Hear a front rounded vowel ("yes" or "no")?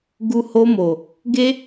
no